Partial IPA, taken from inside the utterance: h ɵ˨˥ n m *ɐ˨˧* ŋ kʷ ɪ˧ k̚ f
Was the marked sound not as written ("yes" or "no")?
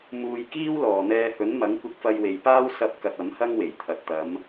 yes